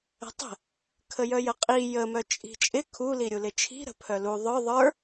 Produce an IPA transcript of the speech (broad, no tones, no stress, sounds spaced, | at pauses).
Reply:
ə̤ tˤ ə̤ | kʰ ə j œ j ə qʼ i j ə m œ t͡ʃʼ i̤ t͡ʃʼ ɪ kʰ u l i ɾʲ u l ɪ t͡ʃʰ i̤ ɾ ə̤ pʰ œ l u ðˤ œ ðˤ ə˞